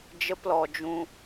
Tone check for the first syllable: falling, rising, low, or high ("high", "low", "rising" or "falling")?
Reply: high